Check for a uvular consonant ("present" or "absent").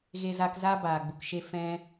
absent